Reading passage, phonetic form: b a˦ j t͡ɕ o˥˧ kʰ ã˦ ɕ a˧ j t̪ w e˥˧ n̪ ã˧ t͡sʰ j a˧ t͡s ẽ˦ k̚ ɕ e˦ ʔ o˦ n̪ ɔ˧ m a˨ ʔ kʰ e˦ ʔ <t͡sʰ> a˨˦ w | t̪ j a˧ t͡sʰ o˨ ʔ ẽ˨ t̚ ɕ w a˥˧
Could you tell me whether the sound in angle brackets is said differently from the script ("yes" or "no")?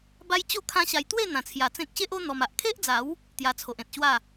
yes